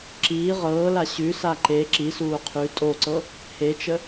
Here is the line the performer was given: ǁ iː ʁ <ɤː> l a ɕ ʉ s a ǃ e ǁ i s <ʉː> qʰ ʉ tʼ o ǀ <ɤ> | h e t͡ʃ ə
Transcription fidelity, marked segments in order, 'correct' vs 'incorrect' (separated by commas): correct, incorrect, correct